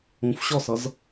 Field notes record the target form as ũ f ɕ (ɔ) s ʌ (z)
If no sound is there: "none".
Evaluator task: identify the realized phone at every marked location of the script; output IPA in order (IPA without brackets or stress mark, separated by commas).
ɔ, z